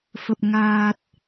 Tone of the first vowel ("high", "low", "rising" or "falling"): low